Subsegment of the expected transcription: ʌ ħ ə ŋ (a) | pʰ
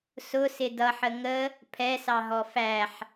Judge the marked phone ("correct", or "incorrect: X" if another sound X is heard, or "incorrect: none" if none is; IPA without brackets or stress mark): incorrect: ə